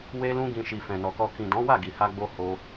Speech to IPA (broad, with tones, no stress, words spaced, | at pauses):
we˧lũ˧ɡĩ˨ ʃi˨fɛ̃˨nɔ˨kɔ˧ kĩ˨dɔ̃˨˦ wa˦˨ɡi˨ha˧ ɡ͡bo˧ ho˧